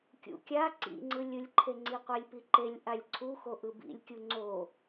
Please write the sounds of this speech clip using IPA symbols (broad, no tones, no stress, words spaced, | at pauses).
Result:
kʲṵkʲa ǀḭŋ͡ǀɯlʲɯlʲǃʰe ŋ͡ǀiqʷelʲpiǃelʲ ʔalʲǀʰuxo ʔɯbḭlʲkʲu ŋ͡ǀo